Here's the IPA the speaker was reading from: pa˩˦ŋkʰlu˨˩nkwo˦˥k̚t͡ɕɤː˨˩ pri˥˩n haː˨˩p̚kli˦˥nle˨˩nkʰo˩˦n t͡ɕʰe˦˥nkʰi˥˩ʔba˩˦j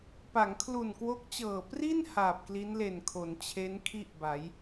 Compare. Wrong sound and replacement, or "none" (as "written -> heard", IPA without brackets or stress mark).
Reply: none